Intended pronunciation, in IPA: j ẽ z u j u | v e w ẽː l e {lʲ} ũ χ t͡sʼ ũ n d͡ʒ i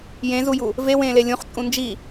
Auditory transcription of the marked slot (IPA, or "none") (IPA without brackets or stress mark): lʲ